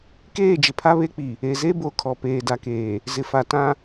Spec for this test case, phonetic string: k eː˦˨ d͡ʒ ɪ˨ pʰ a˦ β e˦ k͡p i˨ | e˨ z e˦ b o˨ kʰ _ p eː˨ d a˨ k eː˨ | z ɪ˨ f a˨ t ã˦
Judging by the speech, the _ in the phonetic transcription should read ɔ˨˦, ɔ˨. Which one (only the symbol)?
ɔ˨